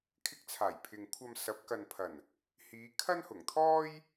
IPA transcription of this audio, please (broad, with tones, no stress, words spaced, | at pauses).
kʰɪ˧k̚t͡sʰaː˨˩jpʰɪ˨ŋkʷʰɐ˧m sɐ˨˥p̚kɐ˨npʰɐ˨˩n | hiː˨˧kʰɐ˥n hʊ˨˩ŋt̪ʰɔː˥j